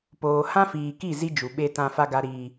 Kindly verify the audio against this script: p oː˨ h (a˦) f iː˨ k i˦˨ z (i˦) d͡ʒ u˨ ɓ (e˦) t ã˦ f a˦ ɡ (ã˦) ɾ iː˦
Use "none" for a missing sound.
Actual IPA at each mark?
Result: ã˦, i˦, e˦, a˦

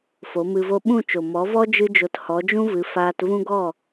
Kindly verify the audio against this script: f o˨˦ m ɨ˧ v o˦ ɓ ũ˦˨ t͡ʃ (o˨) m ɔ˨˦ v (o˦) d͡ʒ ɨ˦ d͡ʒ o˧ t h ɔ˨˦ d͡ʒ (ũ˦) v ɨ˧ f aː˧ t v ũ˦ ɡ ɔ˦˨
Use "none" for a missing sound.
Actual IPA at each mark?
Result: o˨, ɔ˦, ũ˦

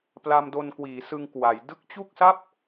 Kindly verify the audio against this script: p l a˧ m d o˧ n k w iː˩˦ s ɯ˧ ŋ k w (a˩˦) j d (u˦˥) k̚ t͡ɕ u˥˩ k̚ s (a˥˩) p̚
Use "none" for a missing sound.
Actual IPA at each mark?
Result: a˩˦, ɯ˦˥, a˥˩

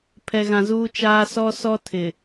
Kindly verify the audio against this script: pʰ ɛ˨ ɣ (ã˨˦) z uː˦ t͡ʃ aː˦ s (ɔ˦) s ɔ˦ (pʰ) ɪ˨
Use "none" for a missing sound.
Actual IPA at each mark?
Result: ã˨, ɔ˦, tʰ

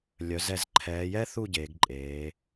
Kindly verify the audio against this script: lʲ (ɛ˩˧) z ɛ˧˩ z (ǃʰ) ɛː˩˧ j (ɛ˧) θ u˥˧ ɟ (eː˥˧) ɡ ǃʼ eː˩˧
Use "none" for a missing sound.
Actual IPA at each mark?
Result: œ˩˧, ǃʰ, ɛ˥, eː˩˧

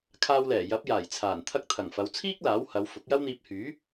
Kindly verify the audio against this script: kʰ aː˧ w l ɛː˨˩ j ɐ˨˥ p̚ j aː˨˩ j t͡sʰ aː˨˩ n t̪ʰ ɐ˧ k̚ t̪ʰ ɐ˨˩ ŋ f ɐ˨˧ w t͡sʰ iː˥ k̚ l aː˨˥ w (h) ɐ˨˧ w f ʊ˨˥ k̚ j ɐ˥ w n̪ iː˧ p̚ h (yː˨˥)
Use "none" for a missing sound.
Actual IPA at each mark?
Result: h, yː˨˥

